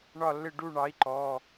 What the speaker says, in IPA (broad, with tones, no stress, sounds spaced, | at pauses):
ɳ ɒ˦˨ lː ɪ˦˨ ɖ u˦˨ ɳ ɑ˨˥ i̯ ǃ ɔ˩˧˩